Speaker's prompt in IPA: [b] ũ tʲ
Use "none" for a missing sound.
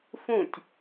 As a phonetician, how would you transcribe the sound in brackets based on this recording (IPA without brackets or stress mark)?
f